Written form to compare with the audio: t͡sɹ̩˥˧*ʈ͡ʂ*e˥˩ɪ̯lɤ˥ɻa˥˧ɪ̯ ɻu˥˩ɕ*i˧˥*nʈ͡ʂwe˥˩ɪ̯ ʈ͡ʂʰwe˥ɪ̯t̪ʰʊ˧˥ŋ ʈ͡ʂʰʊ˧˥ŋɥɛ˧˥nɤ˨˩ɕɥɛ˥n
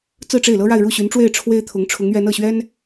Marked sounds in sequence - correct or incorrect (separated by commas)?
correct, incorrect